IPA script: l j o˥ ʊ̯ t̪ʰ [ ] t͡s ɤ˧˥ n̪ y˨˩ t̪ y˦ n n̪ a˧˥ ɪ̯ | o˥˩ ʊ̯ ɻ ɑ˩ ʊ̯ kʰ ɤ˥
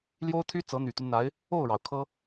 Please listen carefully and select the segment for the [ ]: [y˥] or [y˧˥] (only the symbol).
y˥